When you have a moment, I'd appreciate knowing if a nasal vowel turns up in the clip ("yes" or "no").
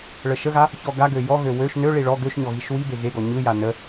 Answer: no